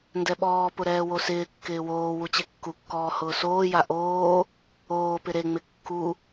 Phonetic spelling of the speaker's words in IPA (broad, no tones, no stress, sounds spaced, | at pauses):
n d ɛ ɓ ɔː p ʊ ɾ ɛː w o s ɪː kː ɪː w oː w u t͡ɕ e kː u kː ɔː h ʊː s oː j a ʔ oː | oː p ɪ ɾ e ŋ͡m ɪ kː u